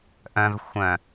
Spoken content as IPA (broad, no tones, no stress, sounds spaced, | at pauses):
ʔ œ̃ v xʷ œ̃